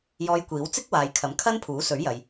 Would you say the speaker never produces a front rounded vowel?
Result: yes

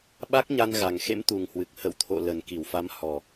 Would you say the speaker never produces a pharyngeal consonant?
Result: yes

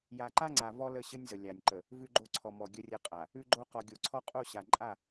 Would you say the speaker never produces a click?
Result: no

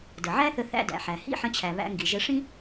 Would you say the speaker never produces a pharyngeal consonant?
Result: no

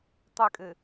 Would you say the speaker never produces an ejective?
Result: no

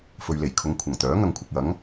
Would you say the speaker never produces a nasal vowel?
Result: yes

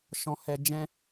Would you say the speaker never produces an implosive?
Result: yes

